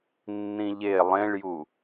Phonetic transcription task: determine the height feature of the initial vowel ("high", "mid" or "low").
high